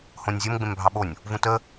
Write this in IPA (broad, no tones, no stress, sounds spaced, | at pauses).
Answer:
h õ nʲ zʲ o m ɡ͡b ẽ m bʱ ɑ ɓ o nʲ | v ũ t ə